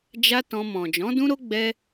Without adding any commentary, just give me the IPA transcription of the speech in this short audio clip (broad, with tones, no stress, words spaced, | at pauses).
d͡ʒa˦tɔ̃˧ mɔ̃˨d͡ʒɔ̃˨˦dũ˦ɾo˦ ɡ͡bɛ˦